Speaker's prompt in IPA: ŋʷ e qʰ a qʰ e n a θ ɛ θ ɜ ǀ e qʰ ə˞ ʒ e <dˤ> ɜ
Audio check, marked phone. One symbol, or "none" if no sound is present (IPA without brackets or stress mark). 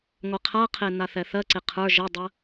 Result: dˤ